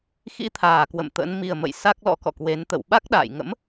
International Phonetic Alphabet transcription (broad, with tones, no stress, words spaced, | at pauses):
xḭ˧˥t̪ʰaː˨˩kwə̰˧˨m t̪ə̰˧˥n mi˨˩ə̯mə̰˧˨j sa˦˥k̚lɔ̰˧˥kɔ̰˧˨kwe˨˦n t̪ə̰˧˨wɓa˦˥k̚ɗa̰ː˧˨jŋə̰˧˥m